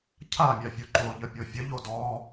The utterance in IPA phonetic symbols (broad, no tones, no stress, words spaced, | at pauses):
cʰa mʲafʲoǃo ʎəpʲofʲə ʎodɔ